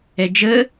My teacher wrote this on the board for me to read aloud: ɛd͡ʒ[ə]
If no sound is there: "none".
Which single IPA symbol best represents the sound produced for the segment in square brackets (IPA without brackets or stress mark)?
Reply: ə